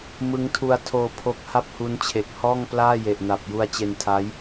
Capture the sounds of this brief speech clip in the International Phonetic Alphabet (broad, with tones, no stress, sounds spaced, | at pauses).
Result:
m ɯ˦˥ ŋ tʰ u˧ a̯ tʰ oː˧ pʰ o˦˥ k̚ h a˥˩ p̚ h u˦˥ n t͡ɕʰ e˨˩ k̚ h ɔː˥˩ ŋ p l aː˥˩ j e˨˩ ʔ n a˨˩ p̚ j u˧ a̯ t͡ɕ e˧ n tʰ aː˦˥ j